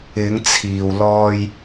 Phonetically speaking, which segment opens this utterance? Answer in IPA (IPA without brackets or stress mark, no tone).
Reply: ɪ